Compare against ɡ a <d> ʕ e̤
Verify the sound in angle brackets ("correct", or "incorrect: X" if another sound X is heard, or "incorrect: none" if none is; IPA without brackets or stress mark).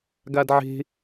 correct